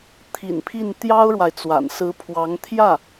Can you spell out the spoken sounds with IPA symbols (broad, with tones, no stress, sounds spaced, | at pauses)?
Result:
t̪ʰ ḭ˨˩ n pʰ i˥˩ n t̪ j ɑ˥ ʊ̯ ɻ w a˨ ɪ̯ t͡s w a̰˨˩ n s ɹ̩˧˥ pʰ w ɑ˧˥ ŋ t̪ʰ j ä˥˩